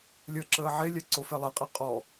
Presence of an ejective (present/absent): present